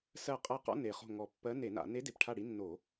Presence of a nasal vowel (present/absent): absent